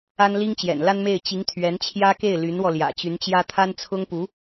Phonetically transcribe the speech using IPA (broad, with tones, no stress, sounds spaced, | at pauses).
a˥ n l i˥ ŋ t͡ɕ j ɛ̰˨˩ n l a˥ n m e˥˩ ɪ̯ t͡ɕ i˧˥ ŋ t̪ʰ ɥ ɛ˧˥ n t͡ɕʰ j ä˥ k e˥˩ ɪ̯ l y˧˥ n w ɔ˧ l j ä̰˨˩ t͡ɕ y˧˥ n t͡ɕ j ä˥ t̪ʰ a˥ n t͡sʰ ʊ˥ ŋ p u˧˥